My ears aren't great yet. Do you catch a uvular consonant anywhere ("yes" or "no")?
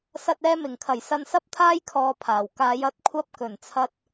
no